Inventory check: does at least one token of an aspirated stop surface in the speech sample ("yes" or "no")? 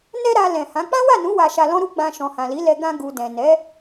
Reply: no